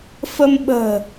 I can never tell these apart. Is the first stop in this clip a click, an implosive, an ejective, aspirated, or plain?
implosive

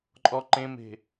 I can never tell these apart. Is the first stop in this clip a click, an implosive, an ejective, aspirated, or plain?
click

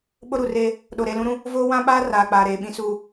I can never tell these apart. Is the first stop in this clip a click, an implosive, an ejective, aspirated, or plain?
implosive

